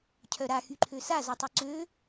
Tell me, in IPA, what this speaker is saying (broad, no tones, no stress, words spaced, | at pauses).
cʰœɾa xyǃʰøsa zɔtˤyǀø